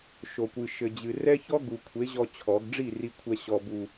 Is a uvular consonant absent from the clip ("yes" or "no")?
yes